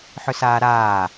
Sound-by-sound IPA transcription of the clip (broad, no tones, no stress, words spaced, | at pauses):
ħʏsaːɾaː